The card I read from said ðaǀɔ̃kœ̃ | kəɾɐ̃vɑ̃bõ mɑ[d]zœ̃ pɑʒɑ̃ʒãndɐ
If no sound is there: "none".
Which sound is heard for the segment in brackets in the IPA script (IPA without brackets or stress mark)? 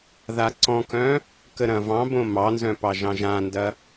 n